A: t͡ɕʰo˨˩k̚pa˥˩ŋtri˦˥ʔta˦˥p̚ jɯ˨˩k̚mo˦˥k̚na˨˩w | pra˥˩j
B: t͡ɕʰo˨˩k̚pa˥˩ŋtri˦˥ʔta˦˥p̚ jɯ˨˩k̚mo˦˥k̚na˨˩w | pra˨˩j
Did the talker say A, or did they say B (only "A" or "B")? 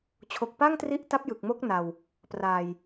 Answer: B